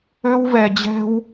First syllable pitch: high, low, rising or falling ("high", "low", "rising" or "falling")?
high